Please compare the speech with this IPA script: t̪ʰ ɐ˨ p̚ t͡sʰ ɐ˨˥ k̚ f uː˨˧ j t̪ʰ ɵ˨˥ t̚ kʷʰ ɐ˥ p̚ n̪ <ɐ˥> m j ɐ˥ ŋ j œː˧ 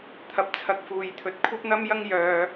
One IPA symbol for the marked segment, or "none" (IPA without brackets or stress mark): ɐ˥